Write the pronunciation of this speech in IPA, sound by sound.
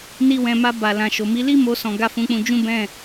n i˧ w ɛ̃˨ m a˧ b a˨ l ã˨ ʃ o˨ m i˨˦ l i˦ m o˧ s ɔ̃˨ ɡ a˧ f ũ˧ k͡p ũ˧ d͡ʒ ũ˦ b ɛ̃˦˨

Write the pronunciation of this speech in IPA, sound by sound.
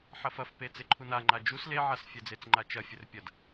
ħ ɐ f ɐ f p e t͡s e ǃʰ u n a ŋ͡ǃ a d͡ʒ u s l e ʕ a s fʲ ɛ d͡z e t͡s ŋ͡ǃ a t͡ʃ ɐ fʲ ɘ r pʲ ɐ d

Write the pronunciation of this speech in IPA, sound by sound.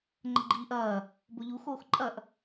ŋ͡ǃ ə ɡ͡ǃ iː ʔ ɐː | b o ʎ u x oː x ǃʼ ɐ ʔ

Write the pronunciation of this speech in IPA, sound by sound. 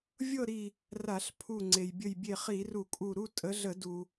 vʲ ɤ˥˧ ɾ i˧˩ | r a˧˩˧ ɬ pʰ u˧˩ ŋ͡ǀ e˩ j bʲ ə˧˩ j bʲ e˧˩ χ i˧˩˧ r u˧˩˧ kʼ u˧˩ ɾ u˥˧ tʼ ə˨˦ ɮ ə˧˩˧ d u˩

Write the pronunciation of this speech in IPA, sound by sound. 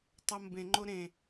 tˤ o m b ẽ ŋ͡ǃ o ɾ ẽ

